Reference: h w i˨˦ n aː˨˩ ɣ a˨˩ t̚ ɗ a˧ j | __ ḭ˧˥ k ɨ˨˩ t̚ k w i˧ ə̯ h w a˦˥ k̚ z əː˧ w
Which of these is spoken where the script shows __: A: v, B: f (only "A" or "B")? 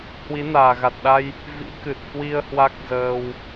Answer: A